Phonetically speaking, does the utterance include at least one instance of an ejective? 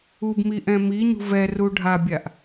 no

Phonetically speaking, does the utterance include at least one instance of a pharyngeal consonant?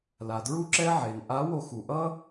yes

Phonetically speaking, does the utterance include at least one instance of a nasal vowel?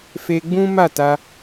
yes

